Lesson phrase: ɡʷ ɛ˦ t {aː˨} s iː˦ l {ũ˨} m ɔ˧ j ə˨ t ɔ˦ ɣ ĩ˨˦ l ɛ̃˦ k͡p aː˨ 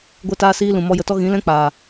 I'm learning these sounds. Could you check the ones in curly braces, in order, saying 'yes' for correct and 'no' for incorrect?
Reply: no, yes

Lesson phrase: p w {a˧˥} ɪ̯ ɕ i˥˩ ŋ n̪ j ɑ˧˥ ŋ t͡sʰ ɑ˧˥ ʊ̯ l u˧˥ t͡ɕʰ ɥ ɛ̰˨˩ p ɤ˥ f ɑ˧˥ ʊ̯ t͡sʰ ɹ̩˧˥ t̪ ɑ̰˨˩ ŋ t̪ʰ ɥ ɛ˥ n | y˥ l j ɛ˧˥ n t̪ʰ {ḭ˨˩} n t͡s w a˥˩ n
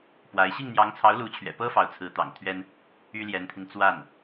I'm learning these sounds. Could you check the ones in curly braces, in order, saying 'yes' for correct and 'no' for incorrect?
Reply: yes, no

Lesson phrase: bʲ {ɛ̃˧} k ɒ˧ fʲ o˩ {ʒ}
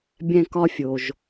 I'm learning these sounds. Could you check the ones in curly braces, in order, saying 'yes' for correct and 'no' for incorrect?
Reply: yes, yes

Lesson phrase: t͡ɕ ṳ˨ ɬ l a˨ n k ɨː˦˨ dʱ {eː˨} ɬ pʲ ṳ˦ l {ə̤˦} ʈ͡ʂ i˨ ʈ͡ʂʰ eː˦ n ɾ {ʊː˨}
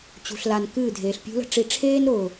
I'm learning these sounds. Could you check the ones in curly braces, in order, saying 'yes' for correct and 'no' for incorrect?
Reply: yes, yes, yes

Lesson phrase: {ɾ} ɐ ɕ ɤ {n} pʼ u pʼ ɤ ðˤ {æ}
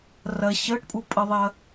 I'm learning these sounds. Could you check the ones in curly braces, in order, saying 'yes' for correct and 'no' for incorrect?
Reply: no, no, no

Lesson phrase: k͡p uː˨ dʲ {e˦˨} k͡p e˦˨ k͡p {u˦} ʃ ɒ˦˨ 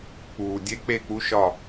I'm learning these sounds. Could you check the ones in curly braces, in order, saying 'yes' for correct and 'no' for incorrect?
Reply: no, yes

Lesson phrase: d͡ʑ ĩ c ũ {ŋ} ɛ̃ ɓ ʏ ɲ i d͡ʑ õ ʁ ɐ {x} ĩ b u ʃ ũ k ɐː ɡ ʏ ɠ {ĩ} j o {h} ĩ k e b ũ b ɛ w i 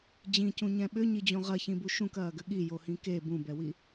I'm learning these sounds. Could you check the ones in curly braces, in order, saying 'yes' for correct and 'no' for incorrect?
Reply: no, no, no, yes

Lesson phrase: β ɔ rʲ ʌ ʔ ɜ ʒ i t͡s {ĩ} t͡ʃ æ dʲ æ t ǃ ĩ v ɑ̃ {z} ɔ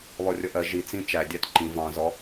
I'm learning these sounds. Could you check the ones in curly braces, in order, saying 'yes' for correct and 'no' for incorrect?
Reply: yes, yes

